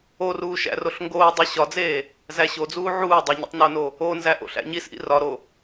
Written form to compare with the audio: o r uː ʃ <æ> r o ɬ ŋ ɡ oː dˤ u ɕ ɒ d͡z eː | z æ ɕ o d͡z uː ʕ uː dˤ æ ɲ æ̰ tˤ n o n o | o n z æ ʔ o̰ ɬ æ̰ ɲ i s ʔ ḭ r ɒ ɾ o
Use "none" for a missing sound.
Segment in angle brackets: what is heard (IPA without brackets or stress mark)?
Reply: æ̰